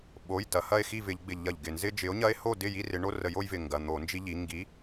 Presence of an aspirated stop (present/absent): absent